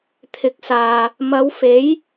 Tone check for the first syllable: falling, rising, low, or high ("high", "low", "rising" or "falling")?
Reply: low